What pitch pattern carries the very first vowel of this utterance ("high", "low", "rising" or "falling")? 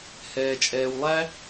low